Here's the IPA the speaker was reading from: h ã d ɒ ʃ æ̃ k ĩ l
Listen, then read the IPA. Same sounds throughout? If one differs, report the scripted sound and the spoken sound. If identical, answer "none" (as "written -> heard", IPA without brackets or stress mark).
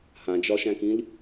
d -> d͡ʒ